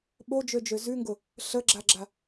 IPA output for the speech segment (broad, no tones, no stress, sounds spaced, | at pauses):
ɓ o d͡ʒ ø d͡ʒ ø z ʉ ŋ ɡ ʊ | ɬ ə ɡ͡ǁ a ɡ͡ǁ a